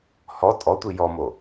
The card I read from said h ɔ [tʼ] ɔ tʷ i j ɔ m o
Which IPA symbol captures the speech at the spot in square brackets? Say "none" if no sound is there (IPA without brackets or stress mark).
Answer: tʼ